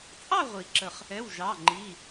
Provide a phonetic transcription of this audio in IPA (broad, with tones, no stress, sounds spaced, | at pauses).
t͡sʼ ɑ˥˨ ʁʷ i˨˩˦ ǁ ə˧˩ χ | ɛ˩˧˩ w ʒ ɑ˩˧˩ ŋ͡ǃ i˩˧˩